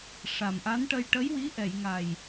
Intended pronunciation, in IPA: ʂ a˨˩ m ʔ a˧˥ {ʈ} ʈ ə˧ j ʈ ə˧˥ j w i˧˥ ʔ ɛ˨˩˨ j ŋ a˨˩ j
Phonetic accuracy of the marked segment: incorrect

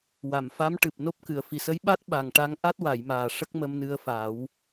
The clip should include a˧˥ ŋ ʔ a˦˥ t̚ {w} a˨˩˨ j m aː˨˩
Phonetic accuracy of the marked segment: correct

